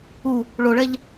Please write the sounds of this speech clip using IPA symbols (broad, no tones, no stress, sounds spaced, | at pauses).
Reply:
u | ɭ o ɭ ɛ ʎ